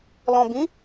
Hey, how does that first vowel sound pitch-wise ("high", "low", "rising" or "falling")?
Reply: low